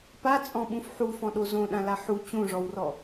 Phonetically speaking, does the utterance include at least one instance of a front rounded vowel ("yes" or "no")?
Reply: no